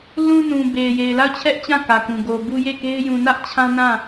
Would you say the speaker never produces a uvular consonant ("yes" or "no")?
yes